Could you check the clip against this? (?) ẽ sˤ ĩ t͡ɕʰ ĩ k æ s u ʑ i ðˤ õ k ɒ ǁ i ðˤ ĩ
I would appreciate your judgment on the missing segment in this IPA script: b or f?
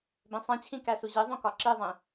b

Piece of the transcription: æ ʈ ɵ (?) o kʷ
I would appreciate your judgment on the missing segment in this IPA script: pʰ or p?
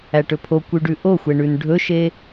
pʰ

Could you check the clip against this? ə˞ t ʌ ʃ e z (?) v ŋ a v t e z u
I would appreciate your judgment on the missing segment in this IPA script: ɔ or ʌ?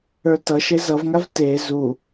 ʌ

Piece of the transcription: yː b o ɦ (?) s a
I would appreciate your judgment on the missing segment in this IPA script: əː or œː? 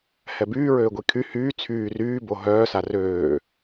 œː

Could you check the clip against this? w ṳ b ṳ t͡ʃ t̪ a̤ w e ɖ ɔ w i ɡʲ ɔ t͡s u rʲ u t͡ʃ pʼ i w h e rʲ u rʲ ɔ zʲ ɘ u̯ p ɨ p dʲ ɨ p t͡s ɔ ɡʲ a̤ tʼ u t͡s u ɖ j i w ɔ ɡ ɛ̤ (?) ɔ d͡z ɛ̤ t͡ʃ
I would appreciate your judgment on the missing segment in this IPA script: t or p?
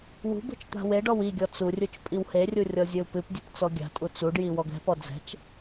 p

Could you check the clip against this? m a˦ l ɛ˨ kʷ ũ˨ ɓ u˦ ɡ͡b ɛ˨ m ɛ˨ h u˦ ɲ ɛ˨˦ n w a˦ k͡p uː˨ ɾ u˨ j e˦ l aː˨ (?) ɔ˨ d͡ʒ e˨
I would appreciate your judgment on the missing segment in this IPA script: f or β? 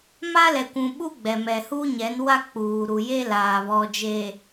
β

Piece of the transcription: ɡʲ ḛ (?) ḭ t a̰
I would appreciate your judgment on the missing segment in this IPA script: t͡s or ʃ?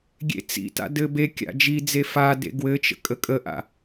t͡s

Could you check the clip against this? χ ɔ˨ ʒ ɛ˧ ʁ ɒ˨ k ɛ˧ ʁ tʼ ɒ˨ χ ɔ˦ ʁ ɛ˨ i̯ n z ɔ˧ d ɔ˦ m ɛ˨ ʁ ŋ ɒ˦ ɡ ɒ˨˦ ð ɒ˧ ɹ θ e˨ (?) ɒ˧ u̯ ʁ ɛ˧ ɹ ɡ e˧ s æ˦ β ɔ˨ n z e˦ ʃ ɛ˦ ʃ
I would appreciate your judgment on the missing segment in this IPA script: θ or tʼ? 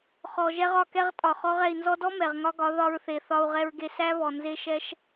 θ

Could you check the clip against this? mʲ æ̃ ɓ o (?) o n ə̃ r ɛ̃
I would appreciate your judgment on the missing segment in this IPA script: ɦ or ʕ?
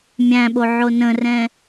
ʕ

